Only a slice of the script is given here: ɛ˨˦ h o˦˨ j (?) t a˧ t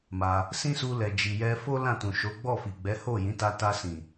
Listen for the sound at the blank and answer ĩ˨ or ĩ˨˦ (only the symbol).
ĩ˨˦